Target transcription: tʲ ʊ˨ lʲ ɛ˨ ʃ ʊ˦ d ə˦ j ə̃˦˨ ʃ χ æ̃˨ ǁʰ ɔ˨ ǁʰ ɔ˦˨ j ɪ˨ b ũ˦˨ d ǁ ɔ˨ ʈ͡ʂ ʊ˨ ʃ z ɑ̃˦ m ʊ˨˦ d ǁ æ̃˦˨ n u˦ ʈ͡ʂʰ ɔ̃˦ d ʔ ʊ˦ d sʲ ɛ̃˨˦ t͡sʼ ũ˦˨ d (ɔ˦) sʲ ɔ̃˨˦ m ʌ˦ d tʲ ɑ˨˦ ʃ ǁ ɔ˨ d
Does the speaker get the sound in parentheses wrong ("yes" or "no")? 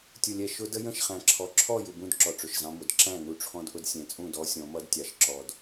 no